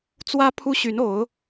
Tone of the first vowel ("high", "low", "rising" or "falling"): high